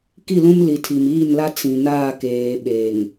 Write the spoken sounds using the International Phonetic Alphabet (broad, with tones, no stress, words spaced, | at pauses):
ki˦˨lũ˦m li˨tʰi˨miː˦˨nla˦ t͡sĩ˨naː˦˨ keː˨ɓeː˨ŋ